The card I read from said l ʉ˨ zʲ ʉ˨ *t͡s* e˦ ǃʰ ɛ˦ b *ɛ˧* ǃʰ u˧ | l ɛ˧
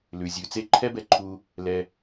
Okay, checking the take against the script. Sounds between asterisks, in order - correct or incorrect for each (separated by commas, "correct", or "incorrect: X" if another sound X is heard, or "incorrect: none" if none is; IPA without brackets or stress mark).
correct, correct